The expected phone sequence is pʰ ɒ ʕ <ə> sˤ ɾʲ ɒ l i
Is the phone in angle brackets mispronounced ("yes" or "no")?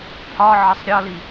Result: no